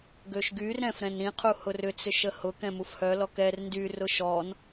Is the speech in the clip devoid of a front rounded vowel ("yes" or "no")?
no